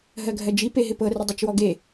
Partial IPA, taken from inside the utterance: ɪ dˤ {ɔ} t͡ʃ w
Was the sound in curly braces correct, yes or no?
no